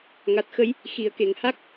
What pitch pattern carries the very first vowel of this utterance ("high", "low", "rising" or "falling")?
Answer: low